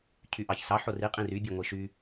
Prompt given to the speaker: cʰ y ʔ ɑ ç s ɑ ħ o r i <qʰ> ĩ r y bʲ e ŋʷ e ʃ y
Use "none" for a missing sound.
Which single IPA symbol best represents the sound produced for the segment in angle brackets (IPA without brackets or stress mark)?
qʼ